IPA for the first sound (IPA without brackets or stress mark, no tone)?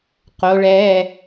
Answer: q